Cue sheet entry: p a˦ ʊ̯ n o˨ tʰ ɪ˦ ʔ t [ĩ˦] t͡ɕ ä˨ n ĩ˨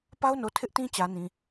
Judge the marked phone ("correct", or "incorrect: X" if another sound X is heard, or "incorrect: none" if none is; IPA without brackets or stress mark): correct